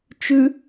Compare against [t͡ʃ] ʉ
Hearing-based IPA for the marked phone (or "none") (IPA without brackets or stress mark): t͡ʃ